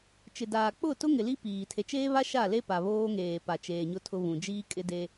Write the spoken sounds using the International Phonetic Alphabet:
t͡ʃ ɪ˨ d aː˨ k͡p ʊ˦˨ t ʊ˦ ŋ ɪ˨ l i˦ p iː˨ tʰ e˨ t͡ʃ eː˦ β a˦ ʃ a˦˨ l e˦ p a˨ β oː˦ ŋ eː˨ p a˨ t͡ʃ eː˨ ɲ ʊ˦ tʰ ʊ˦ β ũ˨ d͡ʒ iː˦ kʼ ɪ˦ d e˦

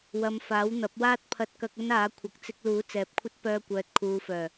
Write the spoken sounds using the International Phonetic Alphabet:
w ɐ˨ m f aː˨˥ w n̪ ɐ˨˥ p̚ w aː˥ t̚ pʰ ɐ˧ t̚ k ɐ˧ k̚ ɵ˥ n aː˨˥ kʷʰ ɐ˨ k̚ t͡s ɪ˧ k̚ l uː˨˥ t͡s ɛː˨ p̚ kʷʰ ɐ˥ t̚ p œː˧ kʷ œː˨ t̚ kʰ uː˨ f œː˨˩

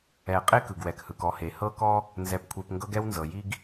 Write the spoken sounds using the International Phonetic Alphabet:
ɛ˨ qʼ e˥ k ɯ˩ ɡ w ɛ˩ k h ɯ˩ k ɔ˨ h e˩ h ɤ˥ k ɔ˥ | n z ɛ˨ p kʷʰ e˨ p ŋ ɡ ɤ˥ ɡ ɛ˥ w n z ɤ˩ j i˦ ɡ

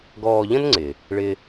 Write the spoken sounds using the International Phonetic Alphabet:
ɡ ɔː˧ ʎ ə̃˥ n ŋ͡ǀ ɪ˩ | ɭ ɪ˧

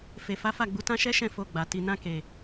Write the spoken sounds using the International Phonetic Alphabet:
f e˨ f a˨˦ f a˦˨ ɡ͡b u˨˦ t ã˦ ʃ ɛ˦ ʃ ɛ̃˦˨ f o˧ ɡ͡b a˨ t i˨ n ã˧ k e˨

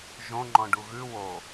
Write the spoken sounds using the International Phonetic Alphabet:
ʒ õ ŋ͡ǃ ɔ̃ ɖ u ɣ ʉ w o

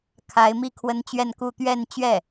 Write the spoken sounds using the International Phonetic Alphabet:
kʰ a˧˥ ɪ̯ m i˥ kʰ w ə˥ n t͡ɕ ɥ ɛ˥˧ n k u˥˧ t̪ ɥ ɛ˥˧ n t͡ɕ ɥ ɛ˥˩

